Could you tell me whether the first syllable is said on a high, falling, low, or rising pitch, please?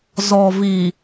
low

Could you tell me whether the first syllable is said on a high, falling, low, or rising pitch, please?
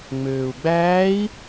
low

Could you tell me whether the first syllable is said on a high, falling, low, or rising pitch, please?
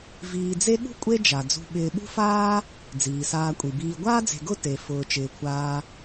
low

